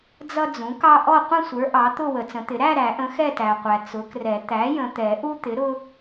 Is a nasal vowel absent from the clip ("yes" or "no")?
no